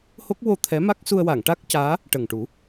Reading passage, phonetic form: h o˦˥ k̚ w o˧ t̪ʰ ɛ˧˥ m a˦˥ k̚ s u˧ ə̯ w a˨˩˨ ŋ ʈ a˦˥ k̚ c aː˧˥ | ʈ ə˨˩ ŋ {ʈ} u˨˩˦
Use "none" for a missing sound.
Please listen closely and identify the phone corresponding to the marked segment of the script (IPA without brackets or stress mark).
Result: ʈ